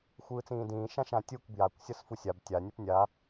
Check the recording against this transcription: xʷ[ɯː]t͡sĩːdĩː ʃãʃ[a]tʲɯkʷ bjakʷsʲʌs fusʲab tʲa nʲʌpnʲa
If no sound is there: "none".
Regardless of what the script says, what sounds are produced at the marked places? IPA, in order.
ɯː, ã

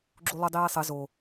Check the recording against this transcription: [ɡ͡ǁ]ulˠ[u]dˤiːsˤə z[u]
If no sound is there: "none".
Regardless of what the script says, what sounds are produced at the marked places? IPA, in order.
ɡ͡ǁ, u, o

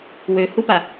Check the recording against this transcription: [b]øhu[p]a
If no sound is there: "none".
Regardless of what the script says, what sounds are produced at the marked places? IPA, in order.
w, p

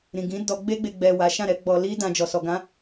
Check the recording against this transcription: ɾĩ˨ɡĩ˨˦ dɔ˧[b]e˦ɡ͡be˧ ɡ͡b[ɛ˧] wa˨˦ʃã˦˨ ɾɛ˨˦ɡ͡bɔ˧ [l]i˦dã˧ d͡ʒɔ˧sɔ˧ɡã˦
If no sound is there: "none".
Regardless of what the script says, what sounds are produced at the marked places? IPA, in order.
ɡ͡b, ɛ˨, l

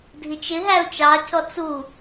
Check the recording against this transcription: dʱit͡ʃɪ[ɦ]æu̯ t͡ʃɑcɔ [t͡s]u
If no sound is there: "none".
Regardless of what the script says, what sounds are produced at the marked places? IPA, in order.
ɦ, t͡s

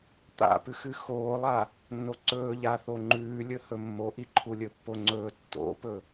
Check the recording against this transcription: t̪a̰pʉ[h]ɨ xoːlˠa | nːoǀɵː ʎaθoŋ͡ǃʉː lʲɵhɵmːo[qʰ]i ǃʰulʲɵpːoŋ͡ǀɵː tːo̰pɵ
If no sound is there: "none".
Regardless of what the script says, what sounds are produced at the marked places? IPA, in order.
x, ʔ

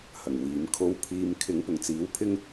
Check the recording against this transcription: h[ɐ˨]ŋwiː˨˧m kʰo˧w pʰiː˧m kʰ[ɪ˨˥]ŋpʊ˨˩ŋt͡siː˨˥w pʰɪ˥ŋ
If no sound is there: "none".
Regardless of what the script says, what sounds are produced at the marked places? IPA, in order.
ɐ˨˩, ɪ˨˥

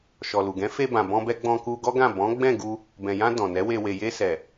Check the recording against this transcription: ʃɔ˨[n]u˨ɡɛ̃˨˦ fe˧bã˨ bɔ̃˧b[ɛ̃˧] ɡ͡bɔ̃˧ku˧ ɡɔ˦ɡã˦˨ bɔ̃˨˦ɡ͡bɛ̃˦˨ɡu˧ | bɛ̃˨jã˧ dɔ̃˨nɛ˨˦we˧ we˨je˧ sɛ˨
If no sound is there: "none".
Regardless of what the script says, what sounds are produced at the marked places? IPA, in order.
l, ɛ˧

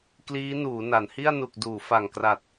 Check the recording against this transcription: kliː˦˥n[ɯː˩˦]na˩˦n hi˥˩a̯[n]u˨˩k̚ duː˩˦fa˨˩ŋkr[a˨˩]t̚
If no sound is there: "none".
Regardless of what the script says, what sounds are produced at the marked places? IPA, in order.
uː˩˦, n, a˨˩

